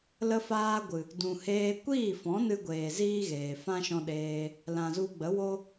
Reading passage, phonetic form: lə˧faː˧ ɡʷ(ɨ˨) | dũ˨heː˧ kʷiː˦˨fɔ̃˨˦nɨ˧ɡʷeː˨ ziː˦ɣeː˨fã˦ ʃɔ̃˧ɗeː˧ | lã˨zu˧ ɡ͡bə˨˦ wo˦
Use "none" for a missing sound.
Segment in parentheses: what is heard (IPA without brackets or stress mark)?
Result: ɨ˨